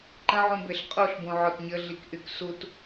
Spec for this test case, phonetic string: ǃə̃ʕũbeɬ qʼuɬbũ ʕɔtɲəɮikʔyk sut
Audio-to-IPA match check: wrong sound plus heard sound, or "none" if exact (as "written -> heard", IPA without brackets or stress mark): none